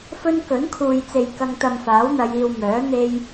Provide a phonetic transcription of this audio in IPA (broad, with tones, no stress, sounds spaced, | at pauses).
f ɵ˥ n k ɵ˨˥ n kʰ uː˨ j t͡s e˨ j k ɐ˥ ŋ t̪ ɐ˧ m f aː˨˥ w n̪ ɐ˨˧ j iː˧ w m œː˨˥ n̪ e˥ j